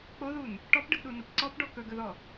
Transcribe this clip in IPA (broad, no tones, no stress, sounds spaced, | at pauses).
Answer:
k͡p o ð u n | ʈ ɔ p ɖ ə ɡ ɗ u n ə p ǀ ɔ p ɖ ɔ k ɵ ɡ ɵ ð ɔ